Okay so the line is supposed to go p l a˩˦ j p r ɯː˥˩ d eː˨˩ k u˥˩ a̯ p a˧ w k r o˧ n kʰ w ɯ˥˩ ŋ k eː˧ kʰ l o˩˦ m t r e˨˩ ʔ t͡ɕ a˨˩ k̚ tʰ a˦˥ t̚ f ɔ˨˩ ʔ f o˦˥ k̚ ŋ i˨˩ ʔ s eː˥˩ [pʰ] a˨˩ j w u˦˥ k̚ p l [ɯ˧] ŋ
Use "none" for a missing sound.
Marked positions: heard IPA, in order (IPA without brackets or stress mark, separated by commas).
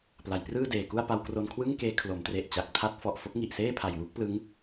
pʰ, ɯ˦˥